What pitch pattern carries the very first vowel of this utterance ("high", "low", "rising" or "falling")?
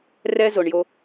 high